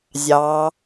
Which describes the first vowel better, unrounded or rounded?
unrounded